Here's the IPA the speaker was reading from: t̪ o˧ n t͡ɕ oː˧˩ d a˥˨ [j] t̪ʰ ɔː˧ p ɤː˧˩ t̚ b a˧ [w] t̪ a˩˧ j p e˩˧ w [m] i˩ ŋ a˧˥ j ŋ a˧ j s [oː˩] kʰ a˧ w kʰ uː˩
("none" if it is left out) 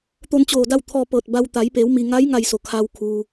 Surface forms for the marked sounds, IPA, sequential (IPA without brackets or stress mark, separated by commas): w, w, m, o˩